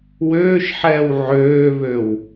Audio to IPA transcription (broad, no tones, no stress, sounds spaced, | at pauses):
w øː ʃ ħ ɛː w ʕ øː β ø w